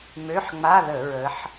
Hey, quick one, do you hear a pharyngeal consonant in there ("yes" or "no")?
yes